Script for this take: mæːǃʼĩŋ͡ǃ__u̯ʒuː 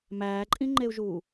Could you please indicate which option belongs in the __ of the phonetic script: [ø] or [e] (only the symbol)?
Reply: e